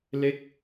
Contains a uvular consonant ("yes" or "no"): no